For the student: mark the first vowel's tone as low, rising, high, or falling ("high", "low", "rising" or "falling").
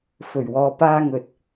low